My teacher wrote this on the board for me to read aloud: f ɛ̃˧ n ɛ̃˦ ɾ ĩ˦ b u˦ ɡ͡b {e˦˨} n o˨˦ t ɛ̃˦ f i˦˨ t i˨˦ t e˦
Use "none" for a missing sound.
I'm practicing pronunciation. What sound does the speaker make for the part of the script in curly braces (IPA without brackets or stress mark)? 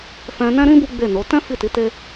e˦˨